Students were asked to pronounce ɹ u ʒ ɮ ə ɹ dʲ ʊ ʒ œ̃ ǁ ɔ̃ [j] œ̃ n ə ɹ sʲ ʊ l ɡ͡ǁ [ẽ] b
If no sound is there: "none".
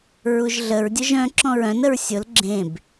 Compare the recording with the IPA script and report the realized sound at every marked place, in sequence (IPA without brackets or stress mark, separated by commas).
ɹ, ẽ